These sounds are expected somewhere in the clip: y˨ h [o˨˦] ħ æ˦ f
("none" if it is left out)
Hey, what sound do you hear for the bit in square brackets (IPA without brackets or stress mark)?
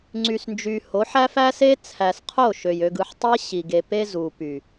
o˨˦